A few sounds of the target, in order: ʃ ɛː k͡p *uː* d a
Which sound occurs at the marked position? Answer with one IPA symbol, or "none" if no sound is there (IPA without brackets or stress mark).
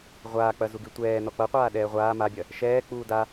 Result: uː